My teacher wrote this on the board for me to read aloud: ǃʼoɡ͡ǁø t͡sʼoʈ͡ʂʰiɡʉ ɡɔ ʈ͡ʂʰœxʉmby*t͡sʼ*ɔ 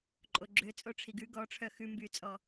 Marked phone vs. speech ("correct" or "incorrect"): correct